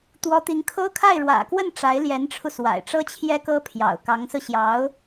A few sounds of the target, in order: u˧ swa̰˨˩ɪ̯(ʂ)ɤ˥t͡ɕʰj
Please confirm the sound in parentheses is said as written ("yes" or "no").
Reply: no